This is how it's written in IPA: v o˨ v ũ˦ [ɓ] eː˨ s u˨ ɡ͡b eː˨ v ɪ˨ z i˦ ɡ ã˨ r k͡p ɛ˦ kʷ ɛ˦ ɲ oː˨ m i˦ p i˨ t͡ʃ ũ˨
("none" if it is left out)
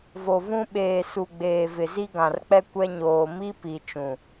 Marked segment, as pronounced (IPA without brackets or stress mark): ɓ